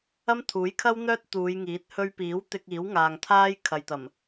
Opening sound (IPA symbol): ɐ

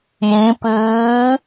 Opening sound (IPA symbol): j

